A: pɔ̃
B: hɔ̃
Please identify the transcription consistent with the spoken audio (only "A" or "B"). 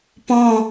A